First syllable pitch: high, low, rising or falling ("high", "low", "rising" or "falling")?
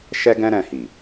high